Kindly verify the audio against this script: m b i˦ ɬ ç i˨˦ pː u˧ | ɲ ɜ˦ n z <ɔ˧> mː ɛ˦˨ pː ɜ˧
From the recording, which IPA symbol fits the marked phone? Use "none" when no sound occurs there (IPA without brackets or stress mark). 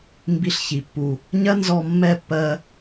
ɔ˧